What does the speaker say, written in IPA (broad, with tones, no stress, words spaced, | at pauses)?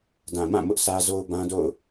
dã˨mã˦˨ mʊ˦ʔsʰä˦ zo˦ʊ̯ bã˦do̰˦˨ʊ̯